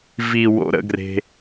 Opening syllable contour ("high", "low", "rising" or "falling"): low